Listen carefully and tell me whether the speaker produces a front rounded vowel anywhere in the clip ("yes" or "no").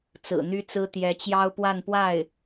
yes